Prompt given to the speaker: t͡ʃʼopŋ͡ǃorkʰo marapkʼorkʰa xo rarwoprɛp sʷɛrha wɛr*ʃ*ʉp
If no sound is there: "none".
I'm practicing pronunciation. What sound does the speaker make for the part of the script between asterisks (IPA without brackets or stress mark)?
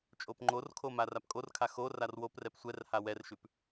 ʃ